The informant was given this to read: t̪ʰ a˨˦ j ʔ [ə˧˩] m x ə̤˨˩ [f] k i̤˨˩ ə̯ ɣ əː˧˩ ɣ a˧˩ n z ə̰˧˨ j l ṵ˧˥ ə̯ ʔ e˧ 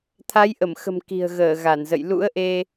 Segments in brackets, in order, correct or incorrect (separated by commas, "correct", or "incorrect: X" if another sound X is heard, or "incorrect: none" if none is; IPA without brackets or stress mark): correct, incorrect: m